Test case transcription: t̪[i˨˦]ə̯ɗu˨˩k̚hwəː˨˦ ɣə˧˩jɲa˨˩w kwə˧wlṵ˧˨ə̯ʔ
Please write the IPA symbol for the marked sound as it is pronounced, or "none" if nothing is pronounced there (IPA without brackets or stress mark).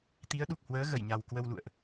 i˨˦